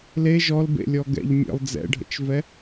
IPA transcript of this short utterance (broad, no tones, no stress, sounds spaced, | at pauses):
l e ʒ ɔ l b ḛ lʲ ɔ ɡ ɛ̰ ʎ mʲ ə̰ lˠ d͡z ɛ̰ ɖʱ ə̰ t͡ʃ v ɛ